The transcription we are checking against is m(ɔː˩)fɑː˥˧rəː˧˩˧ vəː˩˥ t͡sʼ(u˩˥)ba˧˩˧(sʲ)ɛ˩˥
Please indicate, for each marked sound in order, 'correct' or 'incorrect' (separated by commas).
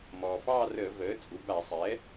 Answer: correct, incorrect, incorrect